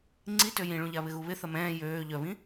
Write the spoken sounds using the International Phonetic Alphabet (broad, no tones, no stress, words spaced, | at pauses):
ŋ͡ǀitø jĩɭũʎa βɪɣuβɪ θɐmɛ̃ː jøː ʎœβĩ